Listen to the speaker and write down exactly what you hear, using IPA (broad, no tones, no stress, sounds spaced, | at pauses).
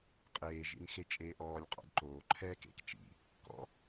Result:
qʼ eː ʒ ḭ n x e t͡ʃʼ eː ʔ ɔː lʲ qʼ ɔ̰ d ǃ oː ǃʰ ɛː k ḛ k t͡ʃ ḭ | k ɔ̰